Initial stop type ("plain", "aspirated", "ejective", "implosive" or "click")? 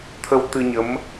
aspirated